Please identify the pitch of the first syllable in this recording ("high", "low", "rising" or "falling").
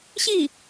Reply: falling